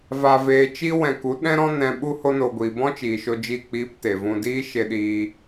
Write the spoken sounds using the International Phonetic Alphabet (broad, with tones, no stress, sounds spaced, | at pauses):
v a˧ v eː˧ t͡ʃ i˦ w ɛ̃˧ k u˨˦ ɗ ɛ̃˦ ɾ ɔ̃˦ n ɛ̃˧ ɓ u˦ h o˦ n o˧ ɡʷ iː˨ b ɔ̃˦ t͡ʃ iː˨ ʃ o˧ d͡ʒ i˦˨ k͡p iː˦ p t e˨ v ũ˧ d iː˦ ʃ e˧ ɗ iː˧